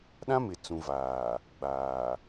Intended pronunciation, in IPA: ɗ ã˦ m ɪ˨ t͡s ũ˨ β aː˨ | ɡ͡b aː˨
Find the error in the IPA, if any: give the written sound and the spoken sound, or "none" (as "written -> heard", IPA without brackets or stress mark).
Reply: β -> v